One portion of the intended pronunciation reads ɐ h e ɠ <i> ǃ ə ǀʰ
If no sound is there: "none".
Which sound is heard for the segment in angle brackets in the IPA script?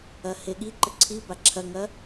i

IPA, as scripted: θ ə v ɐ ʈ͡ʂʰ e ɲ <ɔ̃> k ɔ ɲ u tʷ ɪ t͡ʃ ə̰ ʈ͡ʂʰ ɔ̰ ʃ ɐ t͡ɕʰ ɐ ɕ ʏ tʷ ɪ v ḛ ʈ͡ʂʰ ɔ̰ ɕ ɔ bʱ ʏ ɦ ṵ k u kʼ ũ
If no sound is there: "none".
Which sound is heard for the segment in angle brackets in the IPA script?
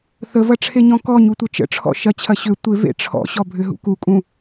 ɔ̃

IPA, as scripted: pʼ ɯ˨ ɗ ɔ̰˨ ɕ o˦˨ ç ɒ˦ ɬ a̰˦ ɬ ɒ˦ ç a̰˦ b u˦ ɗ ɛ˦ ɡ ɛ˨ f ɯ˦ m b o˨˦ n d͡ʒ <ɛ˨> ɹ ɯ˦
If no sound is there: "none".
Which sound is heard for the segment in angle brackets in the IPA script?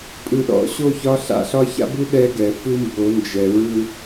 ɛ˨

